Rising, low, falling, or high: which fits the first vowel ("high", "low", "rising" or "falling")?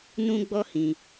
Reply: high